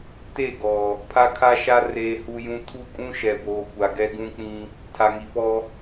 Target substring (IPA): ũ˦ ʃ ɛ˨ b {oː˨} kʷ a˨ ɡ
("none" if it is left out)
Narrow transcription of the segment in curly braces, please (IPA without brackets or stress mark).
oː˨